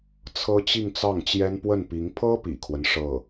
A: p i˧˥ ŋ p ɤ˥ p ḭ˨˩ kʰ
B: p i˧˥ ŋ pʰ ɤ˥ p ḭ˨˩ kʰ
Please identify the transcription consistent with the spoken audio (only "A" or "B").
B